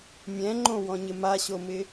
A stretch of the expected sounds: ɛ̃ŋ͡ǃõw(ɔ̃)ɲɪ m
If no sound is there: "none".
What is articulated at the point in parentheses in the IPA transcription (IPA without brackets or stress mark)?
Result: ɔ̃